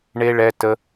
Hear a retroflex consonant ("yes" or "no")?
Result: yes